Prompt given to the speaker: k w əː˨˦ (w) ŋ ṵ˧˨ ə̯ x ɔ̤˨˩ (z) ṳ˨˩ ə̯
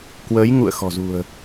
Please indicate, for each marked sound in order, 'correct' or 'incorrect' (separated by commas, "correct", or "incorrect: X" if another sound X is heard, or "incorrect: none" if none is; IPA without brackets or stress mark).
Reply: incorrect: j, correct